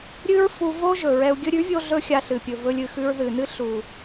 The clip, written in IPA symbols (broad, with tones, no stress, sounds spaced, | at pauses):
ɾʲ ɨ˦ ɹ f u˧ v o˦ ʒ ɵ˨ ɹ ɛ˧ u̯ ɡʲ ɵ˧ ɾʲ ʉ˨˦ vʲ o˧ ɮ ɵ˧ xʲ a˧ ɬ ɨ˨ pʲ ɵ˨ v ɵ˧ lʲ ɨ˨ x ʉ˧ ɹ ð ɨ˨ n ɨ˦ ɬ u˨